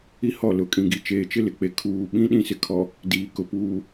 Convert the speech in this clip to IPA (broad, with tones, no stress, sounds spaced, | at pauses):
i˦ h ɔ˦˨ l ʊ˨ kʼ ĩ˨ ɡ i˨ t͡ʃ eː˨ t͡ʃ ɪ˦ l ɪ˨ k͡p e˨ kʰ uː˨ ɓ ĩ˦ ɗ ĩ˦ s ɪ˨ kʰ ɔ˨ | d iː˨ k ʊ˨ p uː˨